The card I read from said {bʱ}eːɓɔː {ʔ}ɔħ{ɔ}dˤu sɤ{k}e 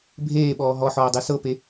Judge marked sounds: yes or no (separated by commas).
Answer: yes, no, no, no